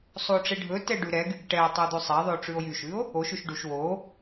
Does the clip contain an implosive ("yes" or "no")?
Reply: no